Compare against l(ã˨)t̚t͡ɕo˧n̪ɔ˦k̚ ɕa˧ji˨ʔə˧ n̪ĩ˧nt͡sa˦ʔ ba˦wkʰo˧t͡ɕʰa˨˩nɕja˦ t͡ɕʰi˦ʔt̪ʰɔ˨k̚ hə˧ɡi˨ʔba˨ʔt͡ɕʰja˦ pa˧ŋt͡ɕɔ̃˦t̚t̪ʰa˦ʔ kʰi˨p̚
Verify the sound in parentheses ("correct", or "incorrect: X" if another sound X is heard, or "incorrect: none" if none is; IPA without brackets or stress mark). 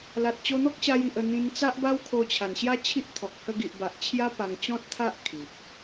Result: incorrect: a˨